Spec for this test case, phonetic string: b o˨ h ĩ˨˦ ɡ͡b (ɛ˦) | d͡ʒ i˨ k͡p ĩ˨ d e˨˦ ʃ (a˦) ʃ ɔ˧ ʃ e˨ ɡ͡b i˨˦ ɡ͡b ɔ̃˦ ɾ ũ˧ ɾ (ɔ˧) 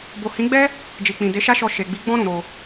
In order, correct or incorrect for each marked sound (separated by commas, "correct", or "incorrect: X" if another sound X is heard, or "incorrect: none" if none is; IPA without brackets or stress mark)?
correct, correct, incorrect: o˧